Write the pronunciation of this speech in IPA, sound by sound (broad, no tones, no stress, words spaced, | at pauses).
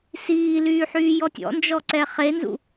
siːlyːħyːjɔ tʲɔ̰nd͡ʒɔǀɛ χenzṵ